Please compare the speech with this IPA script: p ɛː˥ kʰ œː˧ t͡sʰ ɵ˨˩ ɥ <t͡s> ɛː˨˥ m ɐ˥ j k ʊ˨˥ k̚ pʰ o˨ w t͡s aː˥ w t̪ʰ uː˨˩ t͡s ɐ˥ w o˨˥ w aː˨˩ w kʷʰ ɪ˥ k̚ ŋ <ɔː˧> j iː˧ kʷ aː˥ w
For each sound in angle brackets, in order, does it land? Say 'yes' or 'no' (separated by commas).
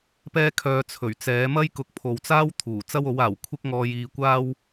yes, yes